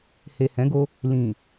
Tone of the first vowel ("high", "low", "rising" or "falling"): low